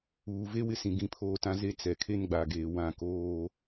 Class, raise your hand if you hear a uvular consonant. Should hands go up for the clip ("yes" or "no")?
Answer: no